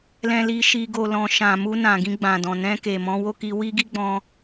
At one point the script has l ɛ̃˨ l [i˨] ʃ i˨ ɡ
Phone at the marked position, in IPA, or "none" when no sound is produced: i˨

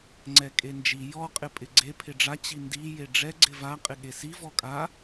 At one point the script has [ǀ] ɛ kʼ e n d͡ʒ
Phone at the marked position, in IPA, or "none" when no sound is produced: ŋ͡ǀ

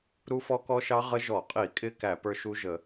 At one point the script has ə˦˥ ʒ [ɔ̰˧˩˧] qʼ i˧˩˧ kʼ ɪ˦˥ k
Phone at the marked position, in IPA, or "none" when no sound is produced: ɔ˧˩˧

